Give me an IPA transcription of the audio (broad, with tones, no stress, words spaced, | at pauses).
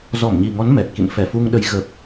zɔ˧˩mɲi˨˩ŋɔ˨˦n mɛ˨˩t̚kḭ˧˨n fɛ˧˩fu˧ŋɗə˨˦j ɣə˨˩p̚